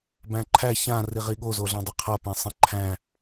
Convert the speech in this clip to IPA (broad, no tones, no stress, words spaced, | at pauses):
bæ̃ǃʰæ çãri ʁiɠozoɮɛ̃ dˤeqʰa pẽsˤẽǃʰæ̃